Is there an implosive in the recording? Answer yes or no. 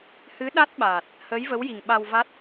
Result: yes